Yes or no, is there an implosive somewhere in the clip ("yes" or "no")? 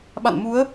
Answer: yes